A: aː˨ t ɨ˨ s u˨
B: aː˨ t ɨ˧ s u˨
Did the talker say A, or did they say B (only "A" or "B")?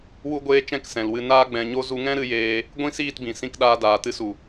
B